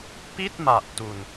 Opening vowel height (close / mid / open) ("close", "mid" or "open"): close